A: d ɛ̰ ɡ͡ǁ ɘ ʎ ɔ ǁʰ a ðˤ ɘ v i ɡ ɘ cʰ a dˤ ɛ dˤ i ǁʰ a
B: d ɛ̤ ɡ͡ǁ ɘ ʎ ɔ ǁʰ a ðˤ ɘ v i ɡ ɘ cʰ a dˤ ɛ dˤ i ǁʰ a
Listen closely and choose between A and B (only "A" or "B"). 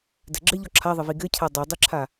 B